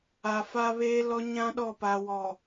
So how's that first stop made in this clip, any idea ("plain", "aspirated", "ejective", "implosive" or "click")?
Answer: implosive